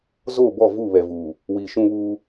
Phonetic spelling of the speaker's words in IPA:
z o˦˨ b ɔ˦˨ v u˦˨ β ɛ˨ v uː˨ | w i˨ ʃ ũ˦ β uː˦

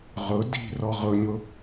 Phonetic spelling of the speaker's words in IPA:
ʁ ʊ d i̤ r ɔ ʁ ʊ ɲ ʊ

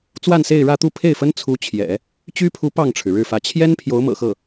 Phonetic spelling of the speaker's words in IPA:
t͡s w a˥˧ n s e˥˧ ɪ̯ ɻ ä˥˧ t̪ u˥˧ pʰ e˥˩ ɪ̯ f ə˥ n t͡sʰ u˧˥ t͡ɕʰ j ɛ̰˨˩˦ | t͡ɕ y˥ pʰ u˧˥ p ɑ˥˩ ŋ ʈ͡ʂʰ ɻ̩˩ ɻ ɻ̩˥˩ f ä˧˥ t͡ɕʰ j ɛ˥ n pʰ j o˧˥ ʊ̯ m ɤ̰˨˩ x ɤ˥˩

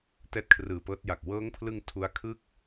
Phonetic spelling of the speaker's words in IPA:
t ɛː˦˥ t̚ kʰ r ɯː˨˩ p ɤː˦˥ t̚ j a˨˩ k̚ w ɤː˦˥ ŋ pʰ l ɯ˧ ŋ tʰ u˦˥ a̯ kʰ ɯ˥˩ k̚

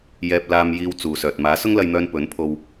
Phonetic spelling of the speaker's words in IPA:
j ɛː˧ p̚ l aː˧ m j iː˧ w t͡s uː˨ s œː˨ t̚ m aː˨˥ s ʊ˥ ŋ l ɐ˧ j n̪ œː˧ n p ɵ˨˥ n pʰ o˧ w

